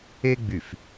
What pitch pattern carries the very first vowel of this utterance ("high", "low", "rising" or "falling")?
high